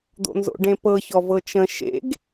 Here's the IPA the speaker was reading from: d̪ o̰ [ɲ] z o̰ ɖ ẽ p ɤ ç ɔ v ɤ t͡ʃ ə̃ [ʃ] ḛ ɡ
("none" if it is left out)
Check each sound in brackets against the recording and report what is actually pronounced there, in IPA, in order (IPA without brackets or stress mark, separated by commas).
n, ʃ